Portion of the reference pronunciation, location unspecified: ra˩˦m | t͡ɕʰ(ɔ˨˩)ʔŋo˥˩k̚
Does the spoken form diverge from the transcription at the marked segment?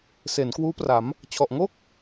no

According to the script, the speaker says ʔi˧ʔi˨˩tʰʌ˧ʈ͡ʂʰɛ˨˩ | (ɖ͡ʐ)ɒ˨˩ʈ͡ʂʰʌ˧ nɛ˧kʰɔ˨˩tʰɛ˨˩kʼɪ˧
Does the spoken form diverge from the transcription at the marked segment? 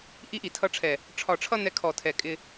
yes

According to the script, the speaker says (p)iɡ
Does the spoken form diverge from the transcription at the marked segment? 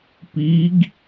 no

